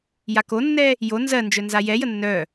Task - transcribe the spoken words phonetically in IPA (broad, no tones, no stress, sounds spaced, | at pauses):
j a k o nː ɛ | j o n z ɜ n d͡ʒ œ n z a j ɛ j ə nː œ